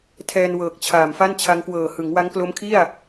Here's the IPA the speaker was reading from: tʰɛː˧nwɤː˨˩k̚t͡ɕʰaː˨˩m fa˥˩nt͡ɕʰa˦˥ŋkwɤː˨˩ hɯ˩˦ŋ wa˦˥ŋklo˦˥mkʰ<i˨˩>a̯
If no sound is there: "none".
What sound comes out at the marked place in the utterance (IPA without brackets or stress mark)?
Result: i˥˩